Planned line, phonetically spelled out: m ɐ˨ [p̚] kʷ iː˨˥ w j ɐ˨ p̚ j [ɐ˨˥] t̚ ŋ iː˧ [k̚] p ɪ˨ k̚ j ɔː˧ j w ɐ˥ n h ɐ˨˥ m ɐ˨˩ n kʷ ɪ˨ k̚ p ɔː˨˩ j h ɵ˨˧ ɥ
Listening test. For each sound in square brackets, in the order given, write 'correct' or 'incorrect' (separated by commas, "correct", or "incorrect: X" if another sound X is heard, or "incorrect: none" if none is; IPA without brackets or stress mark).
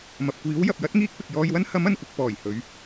correct, correct, correct